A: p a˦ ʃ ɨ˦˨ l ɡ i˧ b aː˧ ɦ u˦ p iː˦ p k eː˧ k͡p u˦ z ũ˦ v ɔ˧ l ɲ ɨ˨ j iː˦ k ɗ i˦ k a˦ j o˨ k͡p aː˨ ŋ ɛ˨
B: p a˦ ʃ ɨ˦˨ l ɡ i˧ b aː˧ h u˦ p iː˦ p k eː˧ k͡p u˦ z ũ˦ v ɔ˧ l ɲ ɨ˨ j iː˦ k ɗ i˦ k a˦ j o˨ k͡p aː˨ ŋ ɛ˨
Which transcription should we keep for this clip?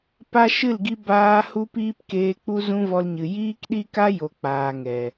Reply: B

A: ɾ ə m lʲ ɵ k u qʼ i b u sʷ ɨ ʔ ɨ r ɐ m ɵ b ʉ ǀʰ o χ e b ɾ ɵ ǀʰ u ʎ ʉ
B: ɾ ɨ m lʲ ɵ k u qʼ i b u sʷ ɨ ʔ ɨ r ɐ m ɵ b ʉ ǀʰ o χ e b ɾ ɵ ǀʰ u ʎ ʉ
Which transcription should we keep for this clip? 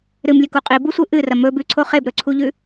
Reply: B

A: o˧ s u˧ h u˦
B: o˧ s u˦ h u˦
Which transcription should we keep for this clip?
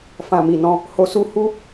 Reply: B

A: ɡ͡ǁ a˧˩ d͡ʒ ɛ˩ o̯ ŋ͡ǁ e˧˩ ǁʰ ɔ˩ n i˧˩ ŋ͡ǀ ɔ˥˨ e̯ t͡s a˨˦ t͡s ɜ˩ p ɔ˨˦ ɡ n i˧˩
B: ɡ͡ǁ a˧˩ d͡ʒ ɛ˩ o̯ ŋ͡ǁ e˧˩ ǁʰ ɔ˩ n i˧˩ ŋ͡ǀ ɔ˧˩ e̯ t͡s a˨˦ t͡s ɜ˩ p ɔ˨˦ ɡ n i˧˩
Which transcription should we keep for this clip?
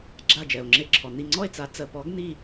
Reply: A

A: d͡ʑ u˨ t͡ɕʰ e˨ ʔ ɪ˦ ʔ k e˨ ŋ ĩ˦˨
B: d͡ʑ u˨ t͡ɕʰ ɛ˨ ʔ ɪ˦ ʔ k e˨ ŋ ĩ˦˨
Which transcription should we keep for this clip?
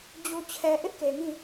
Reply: B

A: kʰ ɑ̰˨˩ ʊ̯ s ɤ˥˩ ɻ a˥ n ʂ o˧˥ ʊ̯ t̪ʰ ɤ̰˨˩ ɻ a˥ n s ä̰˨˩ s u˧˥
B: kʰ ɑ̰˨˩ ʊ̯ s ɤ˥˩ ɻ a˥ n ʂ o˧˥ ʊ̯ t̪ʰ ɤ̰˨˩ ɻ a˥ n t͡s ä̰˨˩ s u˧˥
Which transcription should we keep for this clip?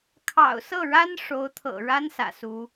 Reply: A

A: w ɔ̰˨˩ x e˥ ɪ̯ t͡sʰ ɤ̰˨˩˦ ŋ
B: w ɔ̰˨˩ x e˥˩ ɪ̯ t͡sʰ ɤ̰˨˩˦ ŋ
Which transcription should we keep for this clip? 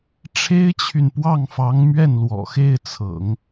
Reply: B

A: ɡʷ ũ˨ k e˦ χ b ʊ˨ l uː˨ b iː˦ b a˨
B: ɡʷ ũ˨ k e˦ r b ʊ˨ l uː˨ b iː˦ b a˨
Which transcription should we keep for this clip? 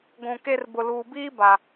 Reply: B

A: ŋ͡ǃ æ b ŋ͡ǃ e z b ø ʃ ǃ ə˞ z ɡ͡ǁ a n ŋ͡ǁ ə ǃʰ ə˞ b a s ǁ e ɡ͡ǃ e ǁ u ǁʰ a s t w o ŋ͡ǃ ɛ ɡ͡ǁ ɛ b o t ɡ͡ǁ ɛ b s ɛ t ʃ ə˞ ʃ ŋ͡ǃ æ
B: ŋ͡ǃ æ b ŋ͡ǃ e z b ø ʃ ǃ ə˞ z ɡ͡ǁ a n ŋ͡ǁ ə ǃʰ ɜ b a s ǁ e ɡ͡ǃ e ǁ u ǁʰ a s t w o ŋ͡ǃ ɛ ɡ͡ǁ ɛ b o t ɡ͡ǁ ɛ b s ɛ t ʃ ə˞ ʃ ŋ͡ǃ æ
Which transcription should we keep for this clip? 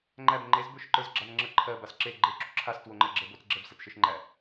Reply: B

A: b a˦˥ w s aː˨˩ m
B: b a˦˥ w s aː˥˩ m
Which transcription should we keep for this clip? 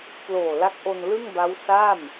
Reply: B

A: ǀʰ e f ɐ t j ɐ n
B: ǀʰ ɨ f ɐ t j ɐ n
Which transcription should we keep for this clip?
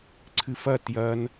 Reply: B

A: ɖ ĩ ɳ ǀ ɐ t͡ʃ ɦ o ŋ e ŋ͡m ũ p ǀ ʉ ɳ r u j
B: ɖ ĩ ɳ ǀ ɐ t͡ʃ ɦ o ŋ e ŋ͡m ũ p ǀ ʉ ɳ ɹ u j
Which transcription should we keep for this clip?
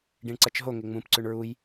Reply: B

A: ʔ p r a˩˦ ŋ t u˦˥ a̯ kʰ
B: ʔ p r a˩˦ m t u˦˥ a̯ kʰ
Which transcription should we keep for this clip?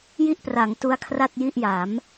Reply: A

